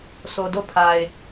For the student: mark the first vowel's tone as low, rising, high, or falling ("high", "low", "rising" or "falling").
low